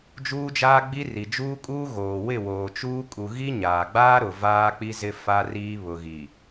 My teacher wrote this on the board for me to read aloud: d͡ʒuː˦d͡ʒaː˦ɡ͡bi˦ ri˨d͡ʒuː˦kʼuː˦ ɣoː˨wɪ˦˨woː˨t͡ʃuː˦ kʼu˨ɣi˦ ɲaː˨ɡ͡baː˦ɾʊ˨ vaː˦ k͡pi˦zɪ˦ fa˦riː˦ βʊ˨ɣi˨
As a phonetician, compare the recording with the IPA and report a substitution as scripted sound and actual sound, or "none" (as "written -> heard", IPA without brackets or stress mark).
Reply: none